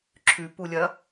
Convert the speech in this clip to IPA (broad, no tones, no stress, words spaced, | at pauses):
ǁʰʉpulʲɐ